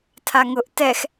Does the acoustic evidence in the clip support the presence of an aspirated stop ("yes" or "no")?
yes